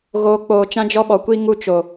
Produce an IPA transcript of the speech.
ɣ oː˨ k͡p oː˨ t͡ʃ ã˦ d͡ʒ ɔ˦ ɓ ɔ˨ kʷ i˦ ŋ u˦ t͡ʃ o˨

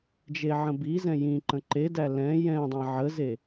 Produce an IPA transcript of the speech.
d͡ʒ e ʕ ə̃ b i z ɛ̃ j ĩ ǃ ə̃ ǃ e d æ l ɛ̃ j ɛ̃ dˤ ã ʕ ə z e

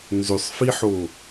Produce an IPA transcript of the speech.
n z ʏ sˤ f i ħ o

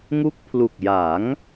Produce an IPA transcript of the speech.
ŋ u˦˥ k̚ pʰ l u˨˩ k̚ j a˩˦ ŋ

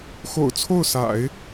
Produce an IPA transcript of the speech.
x o̰˨˩ ʊ̯ t͡sʰ o˥˩ ʊ̯ s a̰˨˩˦ ɪ̯

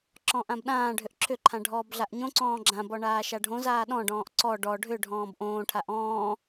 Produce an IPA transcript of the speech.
ǁ ɔ̃ ʔ ã b ɗ ãː ɖʱ ʏ ʔ ǁʰ ʏ ǃʰ ã ɖʱ ɔː b ɮ a ʔ ɲ õ ǀ ɔ̃ː ɡ͡ǁ ã b ɔ ɳ aː ʃ a ɖʱ õ z aː ɗ ɔ̃ ɖ ɔ̃ː ʔ ǀ ɔ ɖ ɔ ɖʱ ʏ ɖʱ ɔ̃ː b ʔ õː ʈʰ a ʔ ɔ̃ː

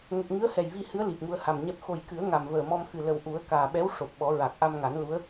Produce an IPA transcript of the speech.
ŋ ə˨˩ k̚ ŋ ɨ˧˥ ə̯ h ɛ˨˩ j v i˧ h ɨ˧˥ ə̯ l i˨˩ p̚ ŋ u˧ ə̯ h a˨˩ m ɲ ɛ˦˥ p̚ x o˨˩ j k ɨ˨˩˦ ə̯ ŋ a˨˩ m v əː˨˩ m ɔ˧ m x ɨ˨˩ l ə˨˩ w ʔ u˨˩˦ ə̯ k aː˨˩ ɓ ɛ˧˥ w ʂ o˨˩ p̚ ɓ ɔ˨˩˦ ɹ a˨˩ k̚ ʔ a˧ m ŋ a˨˩˦ n l u˧˥ ə̯

